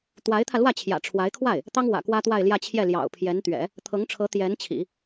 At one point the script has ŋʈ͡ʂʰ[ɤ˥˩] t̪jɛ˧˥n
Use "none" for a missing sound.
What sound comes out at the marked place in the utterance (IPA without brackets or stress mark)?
ɤ˧˥